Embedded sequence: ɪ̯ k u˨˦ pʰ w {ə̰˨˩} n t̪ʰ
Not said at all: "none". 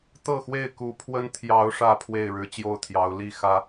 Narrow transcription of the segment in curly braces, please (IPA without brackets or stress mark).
ə˦